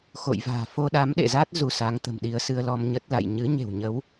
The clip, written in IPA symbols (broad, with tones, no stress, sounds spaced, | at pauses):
x o̰˧˨ j v a̤ː˨˩ f o˧ ɗ a˨˦ m ɗ ḛ˧˨ z a˦˥ t̚ z u˧ s a˨˦ ŋ t̪ ə̤˨˩ m ɗ i˧ ə̯ s ɨ˧ ə̯ l ɔ˧ m ɲ ə˦˥ t̚ l a̰˧˨ j ɲ ɨ˨˦ ɲ e̤˨˩ w ɲ ə˨˦ w